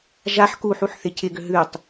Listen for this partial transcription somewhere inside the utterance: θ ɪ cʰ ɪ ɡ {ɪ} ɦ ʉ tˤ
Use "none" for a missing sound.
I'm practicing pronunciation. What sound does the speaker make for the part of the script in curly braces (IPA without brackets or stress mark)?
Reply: ʏ